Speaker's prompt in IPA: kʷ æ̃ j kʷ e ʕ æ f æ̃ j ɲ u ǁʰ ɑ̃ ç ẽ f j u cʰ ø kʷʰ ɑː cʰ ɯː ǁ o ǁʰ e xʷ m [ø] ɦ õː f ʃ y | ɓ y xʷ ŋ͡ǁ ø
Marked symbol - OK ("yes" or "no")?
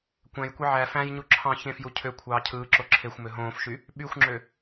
yes